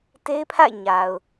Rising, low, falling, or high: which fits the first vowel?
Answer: high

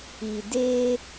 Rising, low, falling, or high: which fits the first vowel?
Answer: low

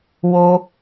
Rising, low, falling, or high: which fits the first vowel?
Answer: high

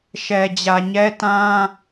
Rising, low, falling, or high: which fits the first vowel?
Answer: low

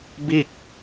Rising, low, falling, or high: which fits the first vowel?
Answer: falling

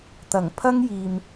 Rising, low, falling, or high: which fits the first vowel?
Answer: low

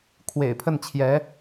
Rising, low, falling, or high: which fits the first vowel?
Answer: low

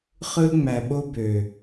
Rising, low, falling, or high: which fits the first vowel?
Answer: high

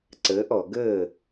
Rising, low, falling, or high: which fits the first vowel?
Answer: rising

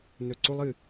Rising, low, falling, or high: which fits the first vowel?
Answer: low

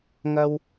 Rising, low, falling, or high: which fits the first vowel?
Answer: high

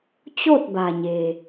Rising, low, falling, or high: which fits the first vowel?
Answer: falling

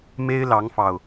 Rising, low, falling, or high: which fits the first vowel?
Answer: high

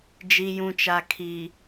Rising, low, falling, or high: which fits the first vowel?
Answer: low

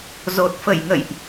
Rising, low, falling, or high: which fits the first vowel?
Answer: low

